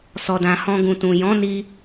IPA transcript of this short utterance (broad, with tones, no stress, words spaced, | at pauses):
sɔ˨dã˨hɔ̃˧ ɡũ˨tũ˨ jɔ̃˨˦ni˧